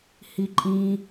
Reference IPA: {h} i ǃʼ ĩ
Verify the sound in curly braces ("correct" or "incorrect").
correct